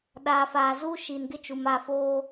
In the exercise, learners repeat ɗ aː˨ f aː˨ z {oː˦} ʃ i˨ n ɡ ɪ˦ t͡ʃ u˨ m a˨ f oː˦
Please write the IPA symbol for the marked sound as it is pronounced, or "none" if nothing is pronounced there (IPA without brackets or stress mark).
uː˦